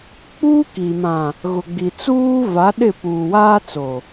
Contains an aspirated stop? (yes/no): no